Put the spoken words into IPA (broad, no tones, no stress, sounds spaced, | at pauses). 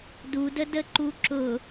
d u d ə d ə ǃ u ǁ ʊ